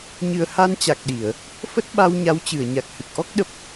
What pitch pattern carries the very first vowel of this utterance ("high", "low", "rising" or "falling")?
low